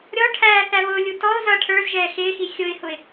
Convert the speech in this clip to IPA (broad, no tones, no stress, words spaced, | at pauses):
ɾʲɔʈʰæː θæβʊːlʲu tɔʊ̯ zʌːʈʰə˞zʒɛː xɪːxi xʲʊɪ̯hʊɪ̯